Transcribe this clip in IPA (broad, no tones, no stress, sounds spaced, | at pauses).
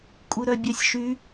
kʷʼ ɨ ɾ œ bʲ œ sʲ ʃ y